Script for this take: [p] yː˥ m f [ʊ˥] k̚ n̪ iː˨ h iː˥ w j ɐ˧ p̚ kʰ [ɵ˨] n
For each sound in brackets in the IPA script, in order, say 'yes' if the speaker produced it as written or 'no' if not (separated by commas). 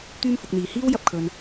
no, no, yes